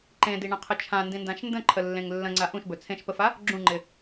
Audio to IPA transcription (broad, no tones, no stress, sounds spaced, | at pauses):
ǃ ẽ d i ɳ ə̃ qʰ ə t͡ʃʰ ã n d ĩ n d ã ʃ n d ə̃ ǃʰ ə lː ẽ ŋ lː ə̃ ŋ͡ǀ a ʔ ũ ʃ b ɵ t͡sʰ ẽ ʃ p ə f a | ɡ͡ǁ ũ ŋ͡ǃ ɪ